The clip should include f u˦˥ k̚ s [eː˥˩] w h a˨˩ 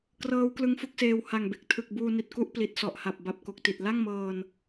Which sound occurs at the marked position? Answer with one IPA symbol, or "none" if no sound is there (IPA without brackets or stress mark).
eː˧